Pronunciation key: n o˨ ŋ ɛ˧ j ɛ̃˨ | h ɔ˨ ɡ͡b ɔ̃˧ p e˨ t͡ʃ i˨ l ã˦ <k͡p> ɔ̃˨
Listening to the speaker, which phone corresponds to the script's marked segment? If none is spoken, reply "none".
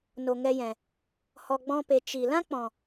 k͡p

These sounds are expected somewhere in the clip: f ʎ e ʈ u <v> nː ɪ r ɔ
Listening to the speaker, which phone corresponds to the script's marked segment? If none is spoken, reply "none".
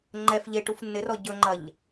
f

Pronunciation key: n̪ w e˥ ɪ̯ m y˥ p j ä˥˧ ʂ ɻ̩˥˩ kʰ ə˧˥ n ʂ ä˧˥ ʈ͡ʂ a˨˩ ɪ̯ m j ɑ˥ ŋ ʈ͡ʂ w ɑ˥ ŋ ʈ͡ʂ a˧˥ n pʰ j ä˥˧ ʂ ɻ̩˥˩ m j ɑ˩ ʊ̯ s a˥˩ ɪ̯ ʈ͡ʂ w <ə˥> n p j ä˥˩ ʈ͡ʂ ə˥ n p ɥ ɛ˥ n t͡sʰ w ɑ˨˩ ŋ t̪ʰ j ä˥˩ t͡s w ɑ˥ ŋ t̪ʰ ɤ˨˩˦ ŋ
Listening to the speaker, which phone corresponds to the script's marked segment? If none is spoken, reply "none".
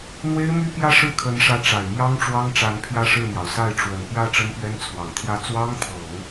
ə˨˩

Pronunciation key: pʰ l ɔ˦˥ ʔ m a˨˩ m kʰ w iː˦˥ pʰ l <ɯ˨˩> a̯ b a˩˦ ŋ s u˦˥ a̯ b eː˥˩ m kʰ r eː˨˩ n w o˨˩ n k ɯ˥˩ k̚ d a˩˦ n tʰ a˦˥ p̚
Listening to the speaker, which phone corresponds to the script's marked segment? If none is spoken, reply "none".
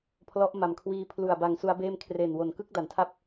u˨˩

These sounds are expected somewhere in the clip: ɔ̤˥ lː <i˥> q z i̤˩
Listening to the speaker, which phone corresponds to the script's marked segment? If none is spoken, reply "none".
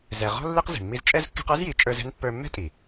i˥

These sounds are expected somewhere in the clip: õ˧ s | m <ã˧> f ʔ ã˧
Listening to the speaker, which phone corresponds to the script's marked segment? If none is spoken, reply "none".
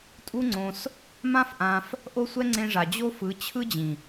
ã˦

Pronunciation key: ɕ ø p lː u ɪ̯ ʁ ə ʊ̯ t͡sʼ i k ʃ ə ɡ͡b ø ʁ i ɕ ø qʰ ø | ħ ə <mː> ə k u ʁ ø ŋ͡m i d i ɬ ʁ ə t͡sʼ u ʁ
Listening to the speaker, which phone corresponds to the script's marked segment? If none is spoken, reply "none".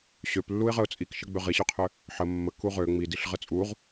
mː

